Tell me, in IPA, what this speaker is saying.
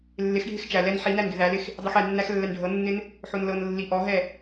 lːɪxɖʱɪx t͡ʃæ lɛn ħinæn ɡɪðælɪx | dˤixɛnːæx lːɛnɖʱɤnːɪn | ħonlɤnlːi ʔɔɦɛ

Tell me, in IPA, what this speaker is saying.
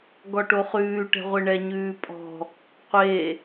ɡɔʈoχʉː ʈɛ̤ʁʷeɳɛ ɲʉːpʼɔ̤ | qʷe

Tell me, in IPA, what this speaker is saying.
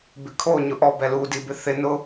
bɪkʰo ɲʊʔɔ bɛlu dibɪθɪ nʊ

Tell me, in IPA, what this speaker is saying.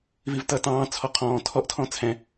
vivtʌːtɑ̃ː t͡sʰɔqʰɔ̃ː tʰɔʔtʰɔ̃ t͡sʰɛ̃

